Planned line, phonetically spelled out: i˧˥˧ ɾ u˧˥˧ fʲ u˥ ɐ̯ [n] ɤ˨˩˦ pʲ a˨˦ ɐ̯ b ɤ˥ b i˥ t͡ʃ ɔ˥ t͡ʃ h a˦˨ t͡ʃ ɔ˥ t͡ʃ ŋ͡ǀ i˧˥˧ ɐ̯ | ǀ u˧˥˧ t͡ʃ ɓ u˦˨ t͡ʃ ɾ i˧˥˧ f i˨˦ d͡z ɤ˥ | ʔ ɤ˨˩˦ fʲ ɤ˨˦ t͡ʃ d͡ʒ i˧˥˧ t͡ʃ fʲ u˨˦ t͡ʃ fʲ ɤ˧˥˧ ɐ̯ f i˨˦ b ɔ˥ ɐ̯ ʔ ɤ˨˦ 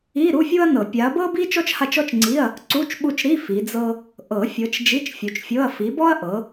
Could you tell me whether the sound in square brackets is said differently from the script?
no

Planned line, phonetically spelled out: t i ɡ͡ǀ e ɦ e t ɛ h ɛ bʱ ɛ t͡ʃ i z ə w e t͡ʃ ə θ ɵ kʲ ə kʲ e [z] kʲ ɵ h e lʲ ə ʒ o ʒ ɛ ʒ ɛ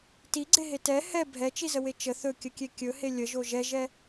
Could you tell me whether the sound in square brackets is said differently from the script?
yes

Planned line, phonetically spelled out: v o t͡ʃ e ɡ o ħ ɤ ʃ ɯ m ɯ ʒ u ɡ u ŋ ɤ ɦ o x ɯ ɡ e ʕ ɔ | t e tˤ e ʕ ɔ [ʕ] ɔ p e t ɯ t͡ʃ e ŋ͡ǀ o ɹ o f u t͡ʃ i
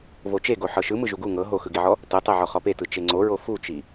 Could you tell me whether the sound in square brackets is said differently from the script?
yes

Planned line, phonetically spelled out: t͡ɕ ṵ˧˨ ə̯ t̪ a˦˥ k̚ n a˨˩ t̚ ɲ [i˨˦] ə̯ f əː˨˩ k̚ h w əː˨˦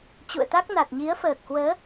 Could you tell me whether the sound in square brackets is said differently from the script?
no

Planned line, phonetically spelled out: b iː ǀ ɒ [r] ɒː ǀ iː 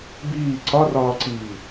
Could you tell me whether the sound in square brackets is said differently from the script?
no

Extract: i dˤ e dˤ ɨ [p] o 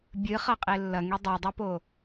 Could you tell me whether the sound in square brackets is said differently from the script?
no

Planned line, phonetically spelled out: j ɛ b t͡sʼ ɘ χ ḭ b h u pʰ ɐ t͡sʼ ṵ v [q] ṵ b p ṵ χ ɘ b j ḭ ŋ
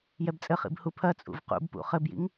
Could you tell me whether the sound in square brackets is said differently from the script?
no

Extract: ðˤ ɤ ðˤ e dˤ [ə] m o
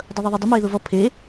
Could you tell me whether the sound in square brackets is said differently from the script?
no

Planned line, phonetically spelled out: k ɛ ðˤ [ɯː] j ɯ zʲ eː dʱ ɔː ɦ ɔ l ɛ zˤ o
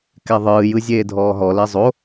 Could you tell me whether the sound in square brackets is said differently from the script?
no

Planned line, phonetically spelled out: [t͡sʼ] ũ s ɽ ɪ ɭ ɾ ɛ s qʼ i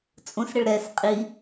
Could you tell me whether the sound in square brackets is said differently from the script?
no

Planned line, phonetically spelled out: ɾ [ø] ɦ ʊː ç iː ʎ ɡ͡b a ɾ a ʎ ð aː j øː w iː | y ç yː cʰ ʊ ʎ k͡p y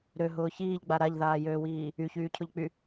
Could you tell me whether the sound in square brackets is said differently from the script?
no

